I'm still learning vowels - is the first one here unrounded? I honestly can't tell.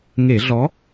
yes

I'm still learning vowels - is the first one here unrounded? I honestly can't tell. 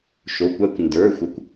no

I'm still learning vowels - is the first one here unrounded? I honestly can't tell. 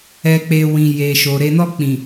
yes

